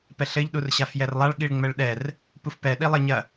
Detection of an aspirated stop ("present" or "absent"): absent